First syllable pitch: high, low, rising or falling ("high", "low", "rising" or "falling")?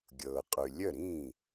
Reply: low